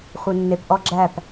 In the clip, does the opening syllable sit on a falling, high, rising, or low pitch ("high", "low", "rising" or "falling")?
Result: low